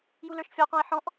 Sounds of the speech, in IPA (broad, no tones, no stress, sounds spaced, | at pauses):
j u l ə˞ ʃ fʲ ɔ q ɔ̃ ɪ̯ ħ ɔ̃ ʔ